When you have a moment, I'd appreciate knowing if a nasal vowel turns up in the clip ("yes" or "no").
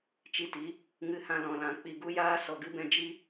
yes